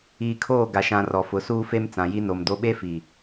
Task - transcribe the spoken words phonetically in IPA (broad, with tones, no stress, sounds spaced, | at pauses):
iː˨ kʰ oː˦˨ ɡ a˨ ʃ ã˨ r ɔ˨ f ʊ˨˦ s uː˦ f e˦ m t͡s ã˨ j i˦ n o˨ m d o˦ ɓ e˦ f i˨